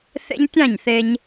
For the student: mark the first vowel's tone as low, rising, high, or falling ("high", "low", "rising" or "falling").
high